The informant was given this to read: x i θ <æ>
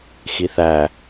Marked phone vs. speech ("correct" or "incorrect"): correct